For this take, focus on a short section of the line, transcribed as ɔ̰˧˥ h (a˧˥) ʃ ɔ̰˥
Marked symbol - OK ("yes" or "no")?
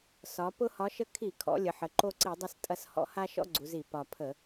no